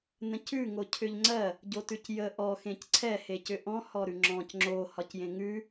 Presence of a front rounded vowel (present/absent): present